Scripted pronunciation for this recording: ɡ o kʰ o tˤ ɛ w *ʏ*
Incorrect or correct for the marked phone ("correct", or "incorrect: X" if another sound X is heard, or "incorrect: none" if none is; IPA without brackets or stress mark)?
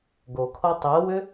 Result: correct